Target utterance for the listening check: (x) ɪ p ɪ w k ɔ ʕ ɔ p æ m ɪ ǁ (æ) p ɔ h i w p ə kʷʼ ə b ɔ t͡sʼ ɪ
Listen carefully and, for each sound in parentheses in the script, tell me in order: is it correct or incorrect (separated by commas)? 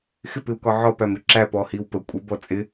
correct, correct